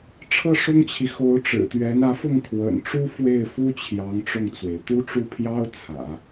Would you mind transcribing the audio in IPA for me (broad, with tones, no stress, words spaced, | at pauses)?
ʈ͡ʂʰɤ˥˩ʂʊ˥ŋt͡ɕʰi˨ xo˧˥ʊ̯ʈ͡ʂɻ̩˨˩t̪ɥɛ˧˥n ä˧˥fʊ˥˩ŋ kʰwə̰˨˩nʈ͡ʂu˥ fwe˥˩ɪ̯ fu˥ t͡ɕʰjɑ˧˥ŋʈ͡ʂʊ˥˩ŋt͡swe˩ɪ̯ t̪u˥ʈ͡ʂu˥˩pʰjɑ˥ʊ̯ t͡sʰä̰˨˩˦